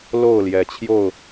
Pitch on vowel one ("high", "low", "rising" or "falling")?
falling